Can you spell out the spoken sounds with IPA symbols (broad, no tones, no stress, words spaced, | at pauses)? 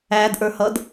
ædʔə˞hʌd